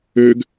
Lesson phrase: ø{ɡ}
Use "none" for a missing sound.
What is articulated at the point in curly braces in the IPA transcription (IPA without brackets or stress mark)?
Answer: ɡ